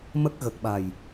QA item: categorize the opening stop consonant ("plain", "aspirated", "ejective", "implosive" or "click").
plain